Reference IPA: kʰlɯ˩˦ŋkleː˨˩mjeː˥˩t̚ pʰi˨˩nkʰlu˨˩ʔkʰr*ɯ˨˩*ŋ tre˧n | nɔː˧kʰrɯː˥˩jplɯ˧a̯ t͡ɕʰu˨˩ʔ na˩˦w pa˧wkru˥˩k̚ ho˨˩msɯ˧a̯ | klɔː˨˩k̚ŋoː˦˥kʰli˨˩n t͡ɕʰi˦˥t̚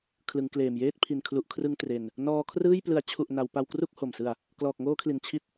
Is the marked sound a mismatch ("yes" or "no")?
yes